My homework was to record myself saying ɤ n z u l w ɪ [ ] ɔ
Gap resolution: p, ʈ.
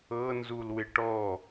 ʈ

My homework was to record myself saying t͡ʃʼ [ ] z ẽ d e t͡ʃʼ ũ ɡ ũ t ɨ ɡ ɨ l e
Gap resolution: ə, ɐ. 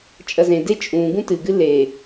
ɐ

